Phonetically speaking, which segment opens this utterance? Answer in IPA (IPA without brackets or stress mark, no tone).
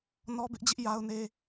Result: n